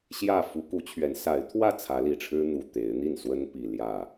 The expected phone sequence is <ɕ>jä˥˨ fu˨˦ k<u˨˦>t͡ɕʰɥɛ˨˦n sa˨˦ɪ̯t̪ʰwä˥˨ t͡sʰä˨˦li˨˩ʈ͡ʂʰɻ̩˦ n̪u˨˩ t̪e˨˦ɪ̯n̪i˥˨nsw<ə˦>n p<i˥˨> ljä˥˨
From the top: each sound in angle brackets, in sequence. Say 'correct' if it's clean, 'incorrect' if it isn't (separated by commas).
correct, correct, correct, incorrect